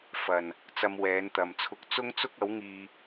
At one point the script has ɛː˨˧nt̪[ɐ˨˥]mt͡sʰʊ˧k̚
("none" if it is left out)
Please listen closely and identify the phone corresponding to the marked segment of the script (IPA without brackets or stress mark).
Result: ɐ˨